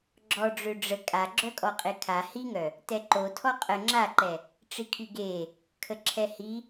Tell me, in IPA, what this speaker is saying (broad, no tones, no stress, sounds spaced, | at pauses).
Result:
ɡ͡ǁ ɔ ɖ͡ʐ ø ɖ͡ʐ ə kʼ a ɡ͡ǁ œ kʼ ɔ qʼ e kʰ a h i ŋ œ | t ɛ ǃ o tʰ ɔ qʼ ə ŋ͡ǁ a ǃ ɛ | ʈ͡ʂ i kʰ y ɡ e | kʰ ə ǁʰ ɛ h i